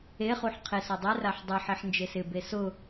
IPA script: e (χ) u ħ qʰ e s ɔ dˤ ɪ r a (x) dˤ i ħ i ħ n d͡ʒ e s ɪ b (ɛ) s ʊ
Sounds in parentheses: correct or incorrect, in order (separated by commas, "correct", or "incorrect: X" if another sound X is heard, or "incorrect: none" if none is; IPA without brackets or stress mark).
correct, incorrect: ħ, incorrect: e